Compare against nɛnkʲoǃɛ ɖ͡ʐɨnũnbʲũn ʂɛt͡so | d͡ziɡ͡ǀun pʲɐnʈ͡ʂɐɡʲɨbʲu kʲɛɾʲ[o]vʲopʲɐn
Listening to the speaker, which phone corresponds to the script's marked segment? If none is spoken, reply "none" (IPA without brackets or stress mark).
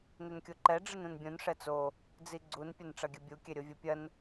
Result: o